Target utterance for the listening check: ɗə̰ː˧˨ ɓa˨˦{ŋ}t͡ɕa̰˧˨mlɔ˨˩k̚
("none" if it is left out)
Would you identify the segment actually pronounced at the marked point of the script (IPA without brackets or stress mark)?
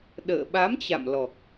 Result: m